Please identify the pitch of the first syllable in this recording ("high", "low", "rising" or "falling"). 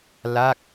falling